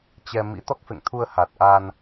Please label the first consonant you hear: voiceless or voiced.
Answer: voiceless